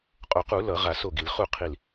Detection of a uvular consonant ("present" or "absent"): present